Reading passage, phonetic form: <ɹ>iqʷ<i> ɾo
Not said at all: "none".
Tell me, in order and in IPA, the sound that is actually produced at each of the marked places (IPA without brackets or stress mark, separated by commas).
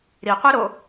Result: ɾ, i